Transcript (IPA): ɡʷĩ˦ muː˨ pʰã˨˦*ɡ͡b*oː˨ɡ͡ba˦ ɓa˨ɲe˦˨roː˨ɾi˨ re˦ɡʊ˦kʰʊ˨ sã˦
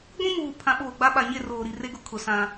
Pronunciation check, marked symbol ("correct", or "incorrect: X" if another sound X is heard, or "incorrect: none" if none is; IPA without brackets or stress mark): incorrect: ɓ